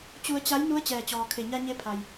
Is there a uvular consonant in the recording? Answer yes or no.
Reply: no